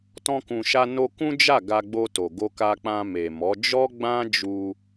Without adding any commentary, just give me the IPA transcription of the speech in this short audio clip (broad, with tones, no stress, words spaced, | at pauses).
tɔ̃˧kũ˨ʃa˧ no˧kũ˦d͡ʒa˦˨ ɡa˧ɡ͡bo˧to˨ ɡo˧ka˧k͡pã˧ me˨mɔ˨˦ d͡ʒɔ˦ɡ͡bã˦ d͡ʒu˧